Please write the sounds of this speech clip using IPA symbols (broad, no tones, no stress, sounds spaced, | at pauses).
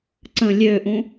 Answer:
ǀ ə̃ lʲ ø ʔ ũ